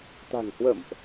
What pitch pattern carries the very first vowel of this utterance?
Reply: low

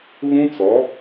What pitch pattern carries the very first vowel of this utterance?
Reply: high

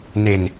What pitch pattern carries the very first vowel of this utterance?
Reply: low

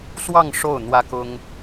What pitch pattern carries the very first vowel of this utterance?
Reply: falling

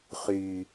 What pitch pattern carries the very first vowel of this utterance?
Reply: high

